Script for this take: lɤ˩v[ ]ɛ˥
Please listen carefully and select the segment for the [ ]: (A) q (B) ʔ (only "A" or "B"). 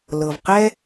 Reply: A